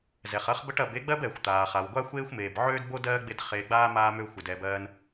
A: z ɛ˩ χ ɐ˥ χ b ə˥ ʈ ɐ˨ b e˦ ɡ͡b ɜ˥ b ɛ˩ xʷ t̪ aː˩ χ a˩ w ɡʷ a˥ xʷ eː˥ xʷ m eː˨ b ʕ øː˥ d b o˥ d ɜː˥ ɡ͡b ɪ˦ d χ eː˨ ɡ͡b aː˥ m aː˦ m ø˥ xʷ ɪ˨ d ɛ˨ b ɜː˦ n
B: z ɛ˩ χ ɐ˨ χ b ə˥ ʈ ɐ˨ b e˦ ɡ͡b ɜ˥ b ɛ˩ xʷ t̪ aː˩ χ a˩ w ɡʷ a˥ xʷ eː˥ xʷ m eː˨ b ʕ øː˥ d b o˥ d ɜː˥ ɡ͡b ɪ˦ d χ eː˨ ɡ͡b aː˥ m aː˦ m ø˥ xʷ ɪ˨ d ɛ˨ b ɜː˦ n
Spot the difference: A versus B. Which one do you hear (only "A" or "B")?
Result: A